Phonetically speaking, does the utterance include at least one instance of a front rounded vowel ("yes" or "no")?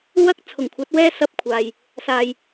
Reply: no